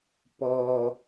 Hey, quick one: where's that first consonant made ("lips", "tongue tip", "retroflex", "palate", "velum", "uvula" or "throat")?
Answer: lips